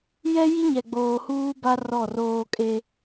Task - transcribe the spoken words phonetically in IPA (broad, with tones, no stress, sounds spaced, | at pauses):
j ɛ˦ j i˦ ɲ ɛ˨ ɡ͡b oː˨ h uː˦ b a˦ r ɔ˦˨ r oː˦ kʼ e˦